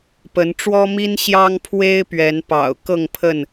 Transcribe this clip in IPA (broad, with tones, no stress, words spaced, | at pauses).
pə˨˦nʈ͡ʂwɔ˦mi˦n ɕjɑ˦ŋ pʰwe˦ɪ̯pɥɛ˨˦npɑ̰˨˩ʊ̯ kɤ˥˨ŋpʰə˥˨n